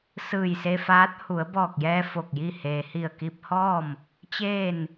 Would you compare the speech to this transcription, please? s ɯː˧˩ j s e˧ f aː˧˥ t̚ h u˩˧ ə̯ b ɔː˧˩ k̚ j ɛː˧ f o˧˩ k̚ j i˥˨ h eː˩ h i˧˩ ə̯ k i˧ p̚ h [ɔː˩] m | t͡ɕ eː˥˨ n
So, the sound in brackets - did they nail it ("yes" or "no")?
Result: no